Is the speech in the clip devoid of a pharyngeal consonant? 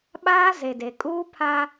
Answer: yes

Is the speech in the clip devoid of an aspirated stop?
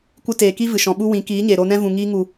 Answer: yes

